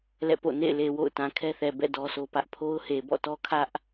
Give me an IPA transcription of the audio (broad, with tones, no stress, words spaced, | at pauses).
lɛ̰˦˨po̰˦˨ nḛ˦˨ɪ̯le˨ wo̰˦˨ʊ̯ tã˨kʰɛ˦θɛ˨bɛ̰˦˨ dɔ˦sʰo˦pä˦ʔ pʰo˦ʊ̯he˨bɔ̰˦˨tɔ˦ kʰä˦ʔ